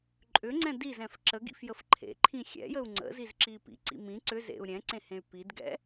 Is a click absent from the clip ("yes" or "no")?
no